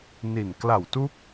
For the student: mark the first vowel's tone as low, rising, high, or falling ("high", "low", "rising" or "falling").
low